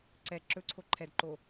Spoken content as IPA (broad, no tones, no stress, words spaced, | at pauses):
ǀɛ ǁɵǀʰo ǃʰɛdǃo